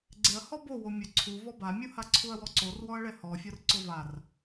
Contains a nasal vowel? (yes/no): no